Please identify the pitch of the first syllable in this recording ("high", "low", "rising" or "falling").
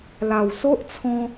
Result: low